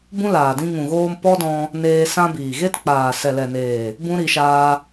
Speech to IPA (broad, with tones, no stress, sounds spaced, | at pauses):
b ũ˦ l aː˨ d ĩ˧ ŋ ũ˨ ɣ oː˧ m p ɔ˦ d ɔ̃˧ | n eː˧ s ã˧ b iː˨ ɣ e˦ t k͡p aː˨ s ɛ˨ l ɛ˨ n eː˨ | b ũ˦ ɾ i˧ ʃ aː˧